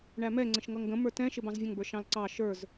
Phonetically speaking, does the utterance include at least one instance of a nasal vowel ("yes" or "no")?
yes